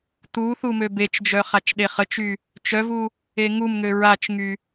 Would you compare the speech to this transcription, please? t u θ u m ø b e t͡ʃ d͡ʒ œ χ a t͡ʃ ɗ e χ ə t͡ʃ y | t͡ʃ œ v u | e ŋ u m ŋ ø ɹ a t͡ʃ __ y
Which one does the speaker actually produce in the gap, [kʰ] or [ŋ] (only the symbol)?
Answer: ŋ